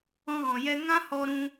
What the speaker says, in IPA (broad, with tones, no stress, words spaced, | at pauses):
ɔ̃˧ɣɔ̃˨jɛ˧ ŋã˦ hɔ˧ɾũ˧